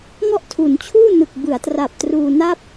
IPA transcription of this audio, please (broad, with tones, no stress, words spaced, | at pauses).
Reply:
ŋɔ˥˩ʔtʰu˩˦n t͡ɕʰuː˥˩nɯ˨˩k̚bɯ˩˦a̯tra˨˩p̚ truː˧na˥˩p̚